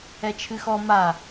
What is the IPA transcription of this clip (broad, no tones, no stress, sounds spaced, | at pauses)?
ɛ t͡ʃʰ ɨ x ɔ m a